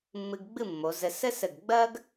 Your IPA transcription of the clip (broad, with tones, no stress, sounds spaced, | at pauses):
mː ɨ˧ ɡ ɡ͡b ɨ˥˧ mː o˩˧ z ɘ˧ s ɘ˥ s ɘ˧˩ ɡ ɡ͡b ɜ˥ ɡ